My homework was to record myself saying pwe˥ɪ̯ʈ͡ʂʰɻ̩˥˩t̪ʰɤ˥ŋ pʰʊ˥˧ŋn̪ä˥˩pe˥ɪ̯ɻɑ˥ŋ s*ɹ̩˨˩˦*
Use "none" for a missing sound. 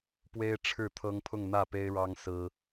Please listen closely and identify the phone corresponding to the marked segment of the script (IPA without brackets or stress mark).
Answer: ɹ̩˥